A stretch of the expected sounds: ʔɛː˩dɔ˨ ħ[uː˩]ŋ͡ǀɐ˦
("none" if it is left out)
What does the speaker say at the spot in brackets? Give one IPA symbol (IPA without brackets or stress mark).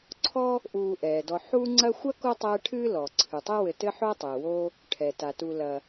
uː˦